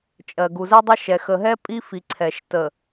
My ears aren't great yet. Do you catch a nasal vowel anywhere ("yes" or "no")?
no